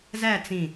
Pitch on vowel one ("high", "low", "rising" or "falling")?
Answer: falling